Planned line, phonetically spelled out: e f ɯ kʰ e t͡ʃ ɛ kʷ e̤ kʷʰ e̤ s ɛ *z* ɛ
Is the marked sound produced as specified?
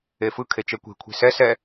no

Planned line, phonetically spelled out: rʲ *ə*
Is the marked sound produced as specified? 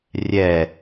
no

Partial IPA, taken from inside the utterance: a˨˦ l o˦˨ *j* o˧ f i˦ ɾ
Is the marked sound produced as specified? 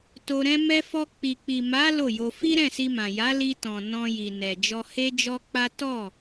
yes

